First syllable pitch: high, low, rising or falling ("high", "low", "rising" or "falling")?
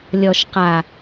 low